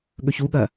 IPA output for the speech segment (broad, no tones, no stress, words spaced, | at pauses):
ɠɵçuɠɐ